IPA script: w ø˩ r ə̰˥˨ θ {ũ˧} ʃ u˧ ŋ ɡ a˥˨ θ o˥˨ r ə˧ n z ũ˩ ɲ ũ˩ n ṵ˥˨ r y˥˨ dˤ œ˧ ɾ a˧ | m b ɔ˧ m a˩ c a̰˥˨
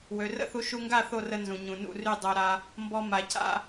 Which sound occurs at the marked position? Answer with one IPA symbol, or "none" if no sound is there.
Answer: u˧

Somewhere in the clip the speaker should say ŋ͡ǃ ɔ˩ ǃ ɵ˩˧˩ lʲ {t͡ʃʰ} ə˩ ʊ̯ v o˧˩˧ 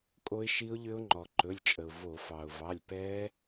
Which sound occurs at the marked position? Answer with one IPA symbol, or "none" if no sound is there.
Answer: t͡ʃʼ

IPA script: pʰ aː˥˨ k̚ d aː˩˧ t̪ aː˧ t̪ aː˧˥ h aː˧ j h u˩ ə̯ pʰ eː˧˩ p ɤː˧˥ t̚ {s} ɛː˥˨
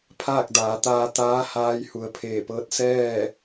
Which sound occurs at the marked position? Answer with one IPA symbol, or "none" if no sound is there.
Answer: s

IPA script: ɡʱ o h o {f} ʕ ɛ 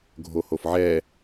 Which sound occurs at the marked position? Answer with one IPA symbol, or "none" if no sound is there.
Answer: f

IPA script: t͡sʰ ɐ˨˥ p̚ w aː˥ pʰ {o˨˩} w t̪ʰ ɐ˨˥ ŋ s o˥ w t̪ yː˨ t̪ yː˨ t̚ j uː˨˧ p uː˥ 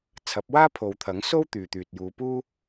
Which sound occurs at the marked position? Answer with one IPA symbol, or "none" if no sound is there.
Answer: o˨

